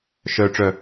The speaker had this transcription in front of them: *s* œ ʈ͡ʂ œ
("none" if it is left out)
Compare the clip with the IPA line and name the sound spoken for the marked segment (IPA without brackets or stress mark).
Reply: ʃ